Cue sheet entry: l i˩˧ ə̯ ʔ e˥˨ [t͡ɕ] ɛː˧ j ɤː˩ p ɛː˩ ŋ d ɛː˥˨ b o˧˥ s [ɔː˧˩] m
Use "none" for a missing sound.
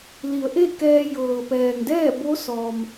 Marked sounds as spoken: k, ɔː˩

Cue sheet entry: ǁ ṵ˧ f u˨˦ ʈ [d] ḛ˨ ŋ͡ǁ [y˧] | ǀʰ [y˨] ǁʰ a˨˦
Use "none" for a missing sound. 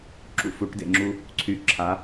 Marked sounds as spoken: d, u˧, y˨

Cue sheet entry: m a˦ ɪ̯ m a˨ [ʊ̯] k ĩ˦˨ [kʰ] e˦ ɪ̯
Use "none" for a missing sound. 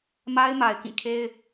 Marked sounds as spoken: ɪ̯, kʰ

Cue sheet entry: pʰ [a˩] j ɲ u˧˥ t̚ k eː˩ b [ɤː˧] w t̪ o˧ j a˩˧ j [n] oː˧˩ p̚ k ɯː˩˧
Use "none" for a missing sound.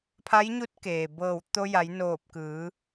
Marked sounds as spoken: a˧˥, ɤː˧˩, n

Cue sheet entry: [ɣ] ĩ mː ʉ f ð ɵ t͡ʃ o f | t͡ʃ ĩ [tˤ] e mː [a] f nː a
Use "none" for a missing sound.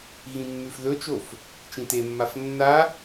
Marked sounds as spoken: ɣ, t, a

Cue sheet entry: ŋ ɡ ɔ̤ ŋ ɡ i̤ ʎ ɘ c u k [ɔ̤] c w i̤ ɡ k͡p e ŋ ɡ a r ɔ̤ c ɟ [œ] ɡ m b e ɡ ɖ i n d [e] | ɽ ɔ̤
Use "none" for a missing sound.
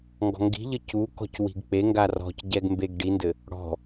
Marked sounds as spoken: ɔ̤, ɛ, ɘ

